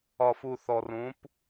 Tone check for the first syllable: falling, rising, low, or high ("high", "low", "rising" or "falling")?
low